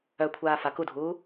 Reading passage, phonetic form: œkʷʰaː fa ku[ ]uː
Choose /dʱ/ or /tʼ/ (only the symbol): dʱ